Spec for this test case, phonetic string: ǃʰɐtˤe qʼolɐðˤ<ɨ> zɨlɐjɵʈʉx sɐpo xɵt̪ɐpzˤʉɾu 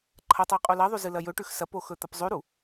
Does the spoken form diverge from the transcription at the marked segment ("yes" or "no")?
yes